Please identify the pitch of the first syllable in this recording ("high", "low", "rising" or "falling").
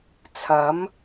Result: rising